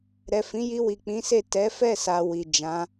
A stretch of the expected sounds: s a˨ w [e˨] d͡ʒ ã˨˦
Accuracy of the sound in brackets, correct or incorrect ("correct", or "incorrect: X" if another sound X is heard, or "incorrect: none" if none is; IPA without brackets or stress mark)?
incorrect: i˨